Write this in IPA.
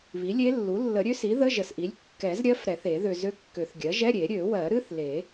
βi˩˥lʲe˧˥lːu˩˥ lːə˨˩˦ɾʲø˧˥si˩˥ ðə˧˥˧ʒə˨sʔi˩˥lʲ kːɛ˨˩˦zɾʲɜ˧˥f ɾɛ˨˩˦θe˨˩˦ ðø˨ zø˧˥kːø˨˩˦θɡʲɜ˩˥ ʒɛ˧˥˧ɾʲe˨˩˦ ɾʲø˨˩˦wɜ˨˩˦ ɾɨ˧˥˧θle˨˩˦

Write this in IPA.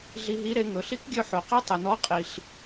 ɮi˧ɦi˧˥ɾe˧ ŋɵ˩ɬi˧˥kɡʲɵ˧ ħo˩qe˥ tˤɵ˩nɔ˧˥ qʼi˩ɬ

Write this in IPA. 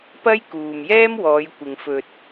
pɐ˥jkuː˨mjɛː˥mwɔː˨˧j kʷɪ˨ŋfɵ˧t̚

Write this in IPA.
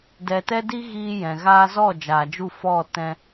dɛ˨tɛ˧di˧ ɣiː˧jɛ̃˨ ɣaː˧zɔ˦˨ d͡ʒaː˨d͡ʒu˦˨ fɔ˦˨ tɛ̃˦

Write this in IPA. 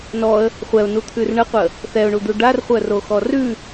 nɔə̯ | χʷɛʊ̯nut̪ʰʉr ɳəqʷə | θɛʊ̯ɳud̪u ɖarχʷœroxɔ rʉ

